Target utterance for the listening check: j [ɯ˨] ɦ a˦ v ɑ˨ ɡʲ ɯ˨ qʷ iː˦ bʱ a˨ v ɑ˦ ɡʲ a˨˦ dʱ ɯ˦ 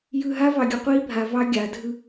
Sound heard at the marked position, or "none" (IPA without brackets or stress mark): ɯ˨